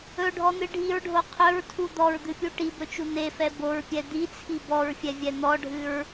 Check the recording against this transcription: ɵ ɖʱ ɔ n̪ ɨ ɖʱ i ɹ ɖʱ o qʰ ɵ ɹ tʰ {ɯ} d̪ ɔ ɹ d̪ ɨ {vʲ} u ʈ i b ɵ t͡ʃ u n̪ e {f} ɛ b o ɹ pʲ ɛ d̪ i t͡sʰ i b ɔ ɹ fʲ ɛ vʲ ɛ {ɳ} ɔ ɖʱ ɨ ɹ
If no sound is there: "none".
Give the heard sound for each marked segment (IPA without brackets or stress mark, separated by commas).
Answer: u, pʲ, f, n̪